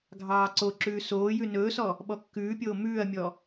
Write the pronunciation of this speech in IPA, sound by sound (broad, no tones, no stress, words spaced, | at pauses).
ɡʱɑːǀoǁʉː soːjʉ nɵːsɔ | ɓɔkːʉːpʲoː mʉːɐ̯mʲɔ